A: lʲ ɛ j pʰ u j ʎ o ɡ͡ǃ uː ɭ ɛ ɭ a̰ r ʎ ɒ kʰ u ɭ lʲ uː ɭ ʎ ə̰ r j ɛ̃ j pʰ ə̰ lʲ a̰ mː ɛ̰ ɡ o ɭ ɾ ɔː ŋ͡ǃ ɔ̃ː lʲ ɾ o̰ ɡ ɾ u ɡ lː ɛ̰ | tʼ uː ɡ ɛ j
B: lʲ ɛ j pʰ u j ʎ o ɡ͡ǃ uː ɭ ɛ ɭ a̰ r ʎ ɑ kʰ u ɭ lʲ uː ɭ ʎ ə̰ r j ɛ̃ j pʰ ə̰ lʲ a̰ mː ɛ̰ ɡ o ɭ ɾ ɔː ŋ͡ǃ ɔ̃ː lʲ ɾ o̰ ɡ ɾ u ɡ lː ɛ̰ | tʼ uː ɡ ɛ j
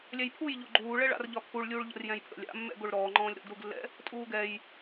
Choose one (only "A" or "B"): A